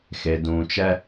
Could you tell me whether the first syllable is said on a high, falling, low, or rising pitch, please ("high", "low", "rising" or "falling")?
low